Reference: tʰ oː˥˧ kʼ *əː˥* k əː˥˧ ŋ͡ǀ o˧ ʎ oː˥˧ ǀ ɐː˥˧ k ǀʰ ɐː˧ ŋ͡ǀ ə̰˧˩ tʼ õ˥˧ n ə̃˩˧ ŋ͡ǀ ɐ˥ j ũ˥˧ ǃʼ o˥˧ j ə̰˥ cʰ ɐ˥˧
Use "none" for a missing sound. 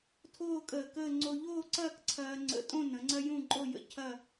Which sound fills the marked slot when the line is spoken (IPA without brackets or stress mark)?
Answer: əː˧˩